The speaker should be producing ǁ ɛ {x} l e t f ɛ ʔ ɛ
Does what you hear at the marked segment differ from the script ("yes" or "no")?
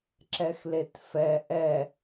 no